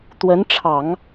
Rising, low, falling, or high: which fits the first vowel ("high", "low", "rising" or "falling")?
rising